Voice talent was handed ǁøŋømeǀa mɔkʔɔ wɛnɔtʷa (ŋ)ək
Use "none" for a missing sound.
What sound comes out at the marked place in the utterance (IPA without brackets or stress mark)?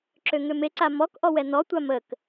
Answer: m